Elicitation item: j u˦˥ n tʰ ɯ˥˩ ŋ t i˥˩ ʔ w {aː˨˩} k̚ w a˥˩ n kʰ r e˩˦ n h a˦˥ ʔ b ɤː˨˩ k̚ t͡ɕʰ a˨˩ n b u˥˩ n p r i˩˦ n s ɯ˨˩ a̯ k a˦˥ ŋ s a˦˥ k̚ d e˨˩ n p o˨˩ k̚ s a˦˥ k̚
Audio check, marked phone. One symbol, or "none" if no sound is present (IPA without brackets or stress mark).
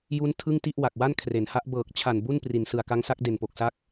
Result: a˨˩